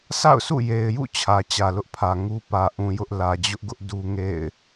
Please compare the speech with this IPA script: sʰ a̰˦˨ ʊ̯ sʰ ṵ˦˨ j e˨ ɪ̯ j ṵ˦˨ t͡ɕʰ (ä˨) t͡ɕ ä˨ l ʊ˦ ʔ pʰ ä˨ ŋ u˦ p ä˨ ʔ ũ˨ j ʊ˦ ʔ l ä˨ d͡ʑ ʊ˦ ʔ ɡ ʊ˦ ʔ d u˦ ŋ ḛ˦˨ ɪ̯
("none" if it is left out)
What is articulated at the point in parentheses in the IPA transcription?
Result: ä˨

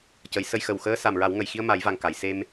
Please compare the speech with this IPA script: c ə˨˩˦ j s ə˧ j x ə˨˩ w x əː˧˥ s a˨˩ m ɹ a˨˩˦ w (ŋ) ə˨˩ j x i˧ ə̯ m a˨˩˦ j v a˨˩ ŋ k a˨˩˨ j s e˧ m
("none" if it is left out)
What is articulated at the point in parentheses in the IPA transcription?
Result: ŋ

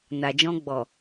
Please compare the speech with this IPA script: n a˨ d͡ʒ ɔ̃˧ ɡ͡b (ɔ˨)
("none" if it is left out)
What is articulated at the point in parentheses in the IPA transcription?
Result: ɔ˨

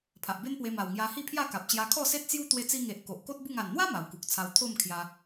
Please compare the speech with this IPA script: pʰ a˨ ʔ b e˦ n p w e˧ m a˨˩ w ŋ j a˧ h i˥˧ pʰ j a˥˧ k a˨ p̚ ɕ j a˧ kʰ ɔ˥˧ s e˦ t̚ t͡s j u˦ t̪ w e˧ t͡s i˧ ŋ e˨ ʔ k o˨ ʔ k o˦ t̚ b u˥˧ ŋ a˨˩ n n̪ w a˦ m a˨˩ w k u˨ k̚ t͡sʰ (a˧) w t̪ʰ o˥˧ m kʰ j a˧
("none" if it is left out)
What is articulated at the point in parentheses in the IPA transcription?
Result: a˧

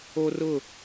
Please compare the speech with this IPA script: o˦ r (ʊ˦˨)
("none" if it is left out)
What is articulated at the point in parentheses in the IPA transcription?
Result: ʊ˦˨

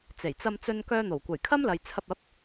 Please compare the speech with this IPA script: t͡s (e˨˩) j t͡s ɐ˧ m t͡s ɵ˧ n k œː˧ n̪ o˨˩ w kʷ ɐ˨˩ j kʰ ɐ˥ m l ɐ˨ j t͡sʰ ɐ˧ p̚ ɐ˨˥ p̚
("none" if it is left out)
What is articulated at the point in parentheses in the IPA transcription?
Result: e˨˩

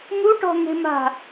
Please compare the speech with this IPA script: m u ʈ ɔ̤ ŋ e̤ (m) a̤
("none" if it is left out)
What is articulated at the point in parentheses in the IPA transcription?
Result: m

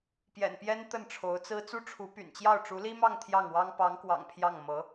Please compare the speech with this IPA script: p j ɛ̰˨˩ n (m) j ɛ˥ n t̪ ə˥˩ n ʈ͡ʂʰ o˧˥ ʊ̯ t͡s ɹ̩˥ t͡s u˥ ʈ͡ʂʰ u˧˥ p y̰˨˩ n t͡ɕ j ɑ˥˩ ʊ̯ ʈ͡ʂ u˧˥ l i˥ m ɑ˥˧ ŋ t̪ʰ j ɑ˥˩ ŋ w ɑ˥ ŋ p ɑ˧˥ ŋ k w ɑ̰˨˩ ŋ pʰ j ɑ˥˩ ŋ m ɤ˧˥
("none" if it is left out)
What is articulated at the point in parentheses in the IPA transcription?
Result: p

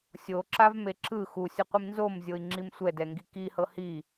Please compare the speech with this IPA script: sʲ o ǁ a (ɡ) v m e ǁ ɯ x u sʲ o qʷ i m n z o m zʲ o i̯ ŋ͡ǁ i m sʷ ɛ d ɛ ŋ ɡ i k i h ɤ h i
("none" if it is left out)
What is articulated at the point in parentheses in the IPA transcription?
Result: none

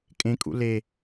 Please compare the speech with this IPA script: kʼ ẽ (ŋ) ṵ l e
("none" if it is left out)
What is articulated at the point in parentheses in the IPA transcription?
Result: kʼ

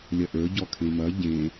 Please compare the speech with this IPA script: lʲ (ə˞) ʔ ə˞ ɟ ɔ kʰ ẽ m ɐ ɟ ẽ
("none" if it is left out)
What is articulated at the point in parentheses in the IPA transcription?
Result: ɐ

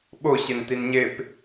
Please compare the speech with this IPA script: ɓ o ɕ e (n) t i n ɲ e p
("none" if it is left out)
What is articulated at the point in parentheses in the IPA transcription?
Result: n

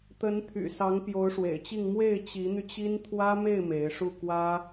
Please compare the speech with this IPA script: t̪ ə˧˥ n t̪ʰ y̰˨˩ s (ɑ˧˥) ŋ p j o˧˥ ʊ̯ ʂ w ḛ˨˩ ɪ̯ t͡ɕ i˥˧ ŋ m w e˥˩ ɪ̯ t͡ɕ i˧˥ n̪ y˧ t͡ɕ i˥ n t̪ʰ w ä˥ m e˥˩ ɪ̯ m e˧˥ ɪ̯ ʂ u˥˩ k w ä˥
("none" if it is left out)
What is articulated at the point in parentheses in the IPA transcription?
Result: ɑ˧˥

